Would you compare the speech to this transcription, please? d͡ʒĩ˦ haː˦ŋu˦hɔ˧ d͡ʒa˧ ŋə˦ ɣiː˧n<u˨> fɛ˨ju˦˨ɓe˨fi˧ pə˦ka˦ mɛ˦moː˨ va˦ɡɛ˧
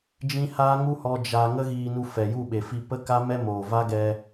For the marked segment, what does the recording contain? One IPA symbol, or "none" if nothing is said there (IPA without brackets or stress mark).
u˧